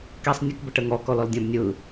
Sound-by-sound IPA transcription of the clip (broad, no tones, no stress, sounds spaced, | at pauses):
k ɛ sˤ nʲ ə k b ə ʈ ə ŋ ɔ k ɔ l ɔ l dʲ ã b nʲ ɯ